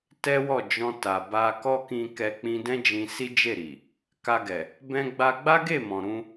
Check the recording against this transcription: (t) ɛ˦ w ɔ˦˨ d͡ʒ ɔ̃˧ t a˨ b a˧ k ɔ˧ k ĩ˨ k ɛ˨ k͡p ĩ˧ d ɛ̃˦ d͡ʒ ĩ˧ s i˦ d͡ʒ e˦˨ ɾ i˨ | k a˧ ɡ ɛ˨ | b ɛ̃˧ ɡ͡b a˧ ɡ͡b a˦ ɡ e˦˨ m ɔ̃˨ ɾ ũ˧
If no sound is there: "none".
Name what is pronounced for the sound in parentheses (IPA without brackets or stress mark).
t